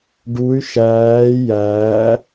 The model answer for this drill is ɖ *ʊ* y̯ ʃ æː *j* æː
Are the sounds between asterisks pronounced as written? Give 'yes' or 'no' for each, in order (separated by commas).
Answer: no, yes